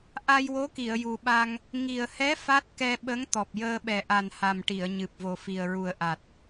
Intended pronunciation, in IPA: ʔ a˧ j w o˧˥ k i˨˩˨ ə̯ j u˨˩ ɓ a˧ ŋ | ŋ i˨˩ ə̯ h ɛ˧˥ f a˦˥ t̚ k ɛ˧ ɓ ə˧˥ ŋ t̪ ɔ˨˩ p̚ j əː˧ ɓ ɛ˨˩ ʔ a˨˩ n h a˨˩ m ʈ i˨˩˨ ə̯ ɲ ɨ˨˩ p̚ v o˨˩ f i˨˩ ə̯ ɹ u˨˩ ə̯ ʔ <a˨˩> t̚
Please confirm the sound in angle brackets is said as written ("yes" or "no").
yes